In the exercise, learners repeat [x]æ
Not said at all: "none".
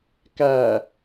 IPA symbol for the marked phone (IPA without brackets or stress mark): k